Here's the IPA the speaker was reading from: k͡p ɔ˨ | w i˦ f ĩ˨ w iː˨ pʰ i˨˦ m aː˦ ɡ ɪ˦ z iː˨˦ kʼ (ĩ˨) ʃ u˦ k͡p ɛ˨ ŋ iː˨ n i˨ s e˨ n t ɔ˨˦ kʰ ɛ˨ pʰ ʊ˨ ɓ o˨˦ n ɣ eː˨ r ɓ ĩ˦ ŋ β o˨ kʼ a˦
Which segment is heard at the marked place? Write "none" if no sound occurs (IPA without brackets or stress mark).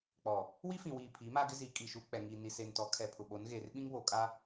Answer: i˨